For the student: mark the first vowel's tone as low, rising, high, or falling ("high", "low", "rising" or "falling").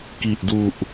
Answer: low